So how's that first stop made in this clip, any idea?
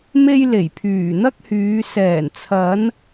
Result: aspirated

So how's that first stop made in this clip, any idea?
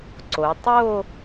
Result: click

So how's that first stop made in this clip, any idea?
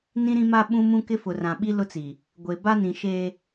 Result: implosive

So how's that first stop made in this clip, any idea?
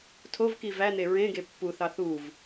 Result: aspirated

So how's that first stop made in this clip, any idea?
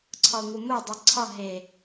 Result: click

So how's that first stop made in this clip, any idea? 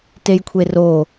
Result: plain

